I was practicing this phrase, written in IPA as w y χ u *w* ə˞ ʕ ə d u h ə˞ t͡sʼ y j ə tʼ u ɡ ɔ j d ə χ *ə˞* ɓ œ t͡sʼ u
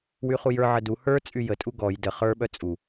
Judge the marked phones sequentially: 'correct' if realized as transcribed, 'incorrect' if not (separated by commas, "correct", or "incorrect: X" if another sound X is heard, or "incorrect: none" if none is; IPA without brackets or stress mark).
incorrect: j, correct